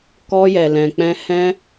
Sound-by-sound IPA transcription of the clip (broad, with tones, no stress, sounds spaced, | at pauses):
k ɔ˧ j ɛ˨ l ɛ̃˨ k͡p ɛ̃˧ h ɛ̃˧